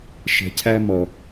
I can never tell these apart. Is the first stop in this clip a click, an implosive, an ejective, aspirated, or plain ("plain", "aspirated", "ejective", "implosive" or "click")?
aspirated